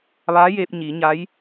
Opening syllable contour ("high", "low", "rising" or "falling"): rising